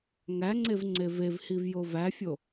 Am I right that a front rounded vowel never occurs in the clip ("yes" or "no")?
yes